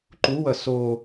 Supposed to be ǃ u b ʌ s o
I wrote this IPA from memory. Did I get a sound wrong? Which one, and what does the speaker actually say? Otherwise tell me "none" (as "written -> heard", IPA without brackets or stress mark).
b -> w